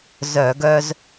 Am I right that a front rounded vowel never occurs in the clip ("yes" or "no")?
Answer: no